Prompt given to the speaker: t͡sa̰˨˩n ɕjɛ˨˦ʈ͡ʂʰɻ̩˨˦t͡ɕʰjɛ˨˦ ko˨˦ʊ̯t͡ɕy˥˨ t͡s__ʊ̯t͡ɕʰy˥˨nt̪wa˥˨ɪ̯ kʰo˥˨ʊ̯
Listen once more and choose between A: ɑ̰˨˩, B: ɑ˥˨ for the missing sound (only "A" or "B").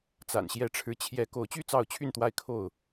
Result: B